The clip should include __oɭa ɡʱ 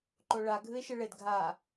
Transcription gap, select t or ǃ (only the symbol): ǃ